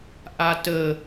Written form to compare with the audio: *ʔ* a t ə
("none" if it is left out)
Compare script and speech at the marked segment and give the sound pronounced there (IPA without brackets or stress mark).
ʔ